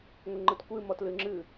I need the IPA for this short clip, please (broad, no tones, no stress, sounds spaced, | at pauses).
ŋʷ ə ŋ͡ǃ ə t kʷ ɨ m ɔ t l ɨ ŋ͡ǁ ɨ